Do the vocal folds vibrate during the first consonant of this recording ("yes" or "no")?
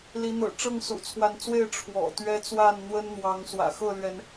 yes